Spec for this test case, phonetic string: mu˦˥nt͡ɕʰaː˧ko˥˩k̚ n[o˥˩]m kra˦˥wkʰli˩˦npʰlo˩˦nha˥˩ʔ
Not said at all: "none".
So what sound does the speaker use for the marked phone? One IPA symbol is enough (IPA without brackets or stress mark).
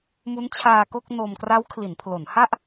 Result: o˧